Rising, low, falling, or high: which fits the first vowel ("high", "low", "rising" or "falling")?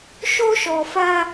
high